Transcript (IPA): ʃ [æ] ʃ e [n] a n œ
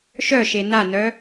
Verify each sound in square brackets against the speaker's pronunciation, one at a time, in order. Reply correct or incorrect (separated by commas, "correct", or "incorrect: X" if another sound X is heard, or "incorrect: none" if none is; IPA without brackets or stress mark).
incorrect: œ, correct